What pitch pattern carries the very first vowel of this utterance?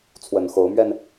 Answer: low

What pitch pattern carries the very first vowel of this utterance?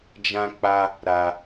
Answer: high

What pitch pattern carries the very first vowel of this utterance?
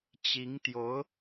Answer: rising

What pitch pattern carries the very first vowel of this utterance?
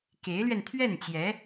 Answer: rising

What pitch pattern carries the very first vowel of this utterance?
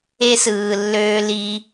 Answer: high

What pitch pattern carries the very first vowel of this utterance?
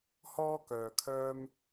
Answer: high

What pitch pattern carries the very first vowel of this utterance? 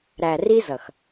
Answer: low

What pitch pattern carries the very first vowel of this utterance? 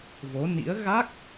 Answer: rising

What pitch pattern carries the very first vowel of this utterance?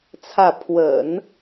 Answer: falling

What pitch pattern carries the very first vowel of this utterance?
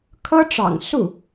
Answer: high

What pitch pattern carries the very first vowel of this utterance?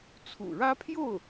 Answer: low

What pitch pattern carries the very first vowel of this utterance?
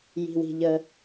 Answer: low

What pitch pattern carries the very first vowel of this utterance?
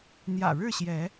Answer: low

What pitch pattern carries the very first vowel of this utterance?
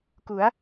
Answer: rising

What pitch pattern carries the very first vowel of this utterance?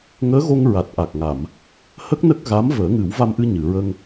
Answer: rising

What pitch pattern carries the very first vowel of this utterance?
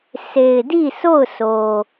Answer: low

